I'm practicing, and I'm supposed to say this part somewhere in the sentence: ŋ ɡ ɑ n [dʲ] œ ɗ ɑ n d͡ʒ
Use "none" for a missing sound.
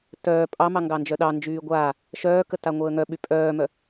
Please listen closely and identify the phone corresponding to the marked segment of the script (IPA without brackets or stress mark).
d͡ʒ